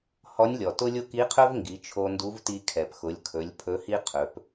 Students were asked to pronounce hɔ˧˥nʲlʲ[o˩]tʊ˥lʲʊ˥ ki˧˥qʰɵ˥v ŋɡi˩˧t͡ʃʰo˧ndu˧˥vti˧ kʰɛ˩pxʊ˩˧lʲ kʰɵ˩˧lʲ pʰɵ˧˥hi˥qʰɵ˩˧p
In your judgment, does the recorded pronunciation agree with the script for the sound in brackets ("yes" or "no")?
no